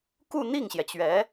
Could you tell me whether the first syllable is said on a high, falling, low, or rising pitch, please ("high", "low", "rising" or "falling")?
falling